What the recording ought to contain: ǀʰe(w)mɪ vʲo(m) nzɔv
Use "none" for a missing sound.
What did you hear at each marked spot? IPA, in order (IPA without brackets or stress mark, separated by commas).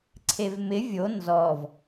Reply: v, none